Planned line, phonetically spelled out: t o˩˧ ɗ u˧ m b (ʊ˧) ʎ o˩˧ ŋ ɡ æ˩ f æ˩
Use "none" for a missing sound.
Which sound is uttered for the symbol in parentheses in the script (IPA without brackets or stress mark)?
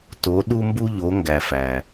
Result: u˧